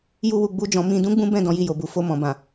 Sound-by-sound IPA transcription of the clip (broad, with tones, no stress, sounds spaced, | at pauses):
j u˦ w u˧ ɡ͡b u˦ d͡ʒ ɔ̃˧ m ĩ˧ d ũ˦ ɡ͡b ũ˦ b ɛ̃˦˨ d ɔ̃˧ j i˧ j o˨ b u˨ f o˧ m ɔ̃˨ b ã˨